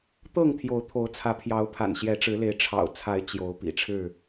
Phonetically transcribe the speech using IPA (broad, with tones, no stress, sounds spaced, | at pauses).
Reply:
t̪ ɤ˥˨ ŋ t̪ʰ j o˨˦ ʊ̯ t̪ʰ o˨˦ ʊ̯ t͡sʰ ä˨˦ pʰ j ɑ˨˦ ʊ̯ pʰ a̰˨˩ n ɕ j ɛ˨˦ ʈ͡ʂ ɻ̩˨˦ l e˨˦ ɪ̯ ʈ͡ʂʰ ɑ̰˨˩ ʊ̯ t͡sʰ a˨˦ ɪ̯ t͡ɕ j o˨˦ ʊ̯ p ḭ˨˩ ʈ͡ʂʰ ɻ̩˥˨